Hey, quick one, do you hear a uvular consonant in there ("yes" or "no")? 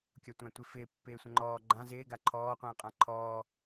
yes